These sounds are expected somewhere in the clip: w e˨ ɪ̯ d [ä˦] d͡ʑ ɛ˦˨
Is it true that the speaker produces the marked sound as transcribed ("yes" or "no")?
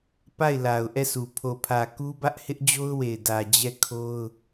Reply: no